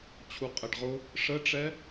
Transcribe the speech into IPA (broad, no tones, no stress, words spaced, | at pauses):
t͡ɕʰuqʼɛɖʁʊ | ʂəʈ͡ʂɛ